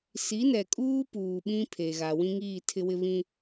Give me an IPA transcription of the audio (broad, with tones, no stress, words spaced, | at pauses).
si˨˦nɛ˨ kʼuː˦ puː˨ɓĩ˦pʰe˨ɣa˨ wĩ˦ŋiː˦˨tʰɪ˦wɪ˦ βĩ˦